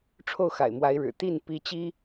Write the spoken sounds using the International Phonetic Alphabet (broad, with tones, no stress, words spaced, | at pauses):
ʈ͡ʂʰo˥˩ʊ̯xa̰˨˩ɪ̯mwa˧˥ɪ̯ɻɻ̩˨˩ t̪i˥˩n pi˥t͡ɕi˥